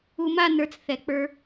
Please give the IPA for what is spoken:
u˧ma˥˨nə˞˧t͡s θɛ˩˧k͡pə˞˧

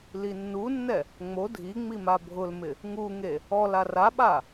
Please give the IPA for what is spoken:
linːunːɛ | ŋ͡mo dʱiŋ͡mi mabʱʊlmɪ | ŋuŋe | ɔla raɓa

